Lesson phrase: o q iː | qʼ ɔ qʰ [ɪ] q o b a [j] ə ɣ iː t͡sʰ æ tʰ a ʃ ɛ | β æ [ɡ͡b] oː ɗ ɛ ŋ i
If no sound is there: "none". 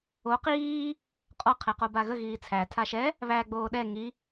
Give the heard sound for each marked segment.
ɛ, ɣ, ɡ͡b

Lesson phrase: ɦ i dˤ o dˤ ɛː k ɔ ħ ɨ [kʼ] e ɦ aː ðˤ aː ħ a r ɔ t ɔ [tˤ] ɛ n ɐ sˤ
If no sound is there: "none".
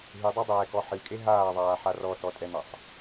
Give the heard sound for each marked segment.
kʼ, tʼ

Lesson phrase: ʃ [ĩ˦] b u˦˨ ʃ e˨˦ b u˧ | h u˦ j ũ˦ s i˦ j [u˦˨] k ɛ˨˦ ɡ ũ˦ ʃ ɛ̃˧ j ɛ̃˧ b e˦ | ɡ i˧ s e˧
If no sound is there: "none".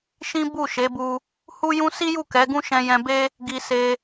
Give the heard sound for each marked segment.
ĩ˦, u˦˨

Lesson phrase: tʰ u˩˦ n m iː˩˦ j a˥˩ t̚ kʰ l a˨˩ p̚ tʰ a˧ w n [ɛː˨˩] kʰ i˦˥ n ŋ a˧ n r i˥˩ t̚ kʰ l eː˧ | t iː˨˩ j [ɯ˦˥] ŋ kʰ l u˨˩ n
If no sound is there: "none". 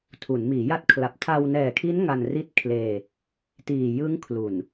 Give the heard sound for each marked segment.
ɛː˨˩, ɯ˦˥

